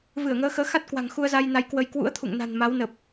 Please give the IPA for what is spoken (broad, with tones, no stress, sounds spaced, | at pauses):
v ɨ˧˩ ə̯ ŋ əː˨˦ x əː˨˦ x a˦˥ t̚ k w a̤˨˩ ŋ x u˧ ə̯ z a˧ j n a˨˦ j k w ə˧ j k w ṵ˧˥ ə̯ t̪ʰ ṵ˧˨ ŋ n a̤˨˩ n m a˨˦ w n ə˨˩ p̚